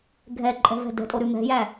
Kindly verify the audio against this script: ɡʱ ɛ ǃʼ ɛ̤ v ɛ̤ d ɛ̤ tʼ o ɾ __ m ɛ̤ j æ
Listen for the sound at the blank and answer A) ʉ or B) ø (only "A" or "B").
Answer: A